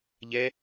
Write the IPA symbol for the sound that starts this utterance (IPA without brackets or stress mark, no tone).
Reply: ʎ